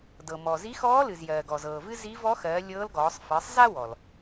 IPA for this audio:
d ɤ˩ m ɔ˩ z i˧˥ x ɔː˧˥ l ɨ˩ z j ɜː˩ ɡ ɔ˩ z ɤː˩ v ɨ˥ z i˧˥ v ɔ˧˥ x ɜː˩˧ lʲ ɤː˧˥ l ɡ ɔː˩˧ sˤ f ɜ˩˧ sˤ z a˥ w ɔ˩ l

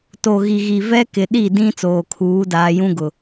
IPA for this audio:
t o˨ ɣ i˨ ɣ i˨ v ɛ˦ k ɪ˨ ɗ i˦˨ d ĩ˦ t͡s oː˨ kʰ uː˨˦ d aː˨ j ũ˦ ɡ ʊ˨

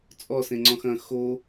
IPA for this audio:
t͡sʼ ɔ s ẽ ŋ͡ǀ ɔ̃ x ɐ̃ x o

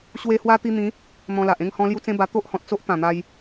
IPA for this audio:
ɕ w e˧ h w a˦ t̪ i˧ n̪ ĩ˨˦ | n̪ ɔ̃˧ l a˨ ʔ ẽ˥˧ ŋ h ɔ̃˧ l j u˧ t͡s ẽ˦ b a˧ t̪ o˦ ʔ h ɔ̃˨ t̚ t͡s o˦ ʔ t̪ ã˨˩ n̪ a˧ j

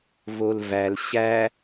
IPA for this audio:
v o l v æ l ɕ æ

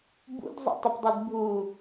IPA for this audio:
b ṵ d zˤ ṵ tˤ ə p dˤ u d bʱ u

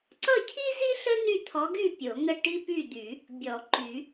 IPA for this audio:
ǀ ʌ˥˨ cʰ i˥ z i˥ ɬ ə˥ n y˥˨ t̪ʰ ɔ˧˥ ɡ y˥˨ pʲ o˨˩˦ ŋ ə˥˨ ʈ i˥ p y˥˨ d̪ y˨˩˦ | bʲ ɔ˨˩˦ ǃ y˨˩˦

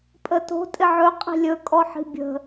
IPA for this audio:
pʼ ə t o̤ tʼ ɪ ʕ ɵ qʼ i̤ lʲ ɵ kʼ ɔ ħ i̤ bʲ ə̤

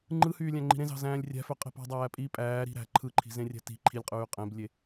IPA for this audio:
ŋ͡ǃ ɯ h yː lʲ æ̃ ŋ͡ǃ i̤ ɾ ẽ z ɑ̤ z æ̃ː lʲ rʲ æ̤ f ø qʼ e̤ p ɑ̤ dˤ æː pʼ i pʼ æː ɾ i̤ ɾ æ̤ ǃʰ ɯ ǃʰ i̤ z ẽ rʲ æ̤ t i̤ ǃʰ i lʲ qʼ yː qʼ ẽ b lʲ e

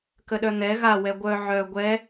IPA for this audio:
k ə ɗ œ n̪ ɛ ɣ a w ɛ ɡʷ œ ʕ œ ɡʷ ɛ

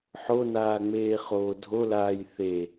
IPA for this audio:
ħ o n aː ŋ͡m eː χ oː dʱ o l aː j θ e

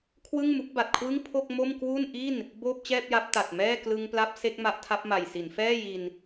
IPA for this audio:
kʰ w ɯ˥˩ ŋ m u˦˥ k̚ b a˨˩ t̚ kʰ w ɯ˥˩ ŋ pʰ o˥˩ k̚ m o˥˩ m k w u˥˩ n ʔ i˥˩ n | b oː˥˩ p̚ t͡ɕ ɛː˥˩ p̚ j a˦˥ p̚ t a˨˩ t̚ m ɛː˥˩ k l ɯ˧ ŋ p l a˦˥ p̚ s e˦˥ k̚ m a˦˥ ʔ tʰ a˦˥ p̚ m a˨˩ j s i˩˦ n f ɛː˥˩ j i˧ n

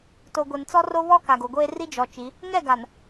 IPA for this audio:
t o˨ ɡʷ e˨ n t͡s ɔ˦ r o˦ β ɔ˦ k a˨ ɡ o˨ ɡʷ eː˦ r i˦ d͡ʒ ɔ˨ t͡ʃ i˨˦ | ŋ ɛ˦˨ ɡ a˨ n

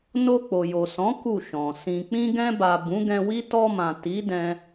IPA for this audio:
n o˧ k͡p o˨ j o˨ s ɔ̃˨˦ k u˦˨ ʃ ɔ̃˨ s ĩ˧ k͡p ĩ˧ ɡ ɛ̃˧ b a˨ b ũ˨˦ ɡ ɛ̃˧ w i˦ t ɔ˧ m ã˨ t i˨˦ d ɛ̃˦

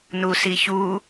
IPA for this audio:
n u s i ç u

